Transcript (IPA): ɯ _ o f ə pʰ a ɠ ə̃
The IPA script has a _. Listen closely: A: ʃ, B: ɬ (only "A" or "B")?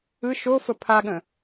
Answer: A